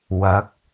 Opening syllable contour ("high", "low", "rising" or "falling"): rising